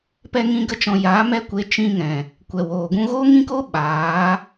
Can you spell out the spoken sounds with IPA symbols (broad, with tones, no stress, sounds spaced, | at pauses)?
p ɛ˦ ŋ ĩ˦ ɡ ə˦ t͡ʃ ɔ̃˧ j a˨˦ m ɛ˦ kʷ e˧ t͡ʃ ĩ˧ ŋ ɛ̃˨ | kʷ ɛ˨ w oː˨ ɡ ũ˧ ɣ oː˦ ŋ ĩ˦ k o˦ ɓ aː˨˦